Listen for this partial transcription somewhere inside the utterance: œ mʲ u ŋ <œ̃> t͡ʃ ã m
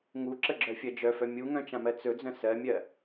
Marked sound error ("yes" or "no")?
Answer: no